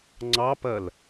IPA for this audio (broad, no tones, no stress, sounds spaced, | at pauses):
ŋ͡ǀ ɑ p ɜ l